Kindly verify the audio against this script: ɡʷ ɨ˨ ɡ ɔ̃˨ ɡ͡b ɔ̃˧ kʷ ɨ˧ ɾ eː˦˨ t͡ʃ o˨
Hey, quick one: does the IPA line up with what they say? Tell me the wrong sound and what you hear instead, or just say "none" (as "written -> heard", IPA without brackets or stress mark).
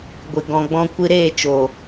none